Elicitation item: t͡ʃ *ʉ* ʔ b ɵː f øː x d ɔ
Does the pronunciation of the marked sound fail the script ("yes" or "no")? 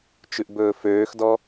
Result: no